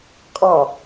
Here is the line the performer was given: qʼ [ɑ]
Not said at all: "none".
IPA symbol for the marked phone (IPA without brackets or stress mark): ɑ